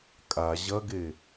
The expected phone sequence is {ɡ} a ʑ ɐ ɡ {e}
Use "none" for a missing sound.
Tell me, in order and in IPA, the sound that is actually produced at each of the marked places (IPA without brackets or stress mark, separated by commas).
kʼ, e